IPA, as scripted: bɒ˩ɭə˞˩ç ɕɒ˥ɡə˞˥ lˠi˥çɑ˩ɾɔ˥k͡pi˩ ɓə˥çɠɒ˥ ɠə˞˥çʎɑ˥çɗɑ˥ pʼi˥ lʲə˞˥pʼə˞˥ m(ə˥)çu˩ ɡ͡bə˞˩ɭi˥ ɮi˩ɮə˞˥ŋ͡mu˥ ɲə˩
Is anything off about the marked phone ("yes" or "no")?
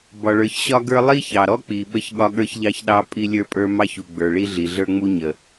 yes